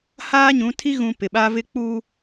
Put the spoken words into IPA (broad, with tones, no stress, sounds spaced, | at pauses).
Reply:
h aː˦ ɲ ũ˨˦ tʰ i˦ ɣ ũ˨ p ɪ˨ ɓ a˦ v ɪ˦ k͡p u˦